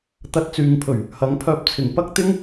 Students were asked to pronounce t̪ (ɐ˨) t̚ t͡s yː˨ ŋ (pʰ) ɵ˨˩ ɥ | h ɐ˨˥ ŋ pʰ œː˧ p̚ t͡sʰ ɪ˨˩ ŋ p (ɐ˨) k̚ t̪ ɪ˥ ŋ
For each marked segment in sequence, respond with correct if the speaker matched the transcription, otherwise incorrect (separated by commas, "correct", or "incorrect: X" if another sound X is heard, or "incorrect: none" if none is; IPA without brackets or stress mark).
incorrect: ɐ˧, correct, incorrect: ɐ˥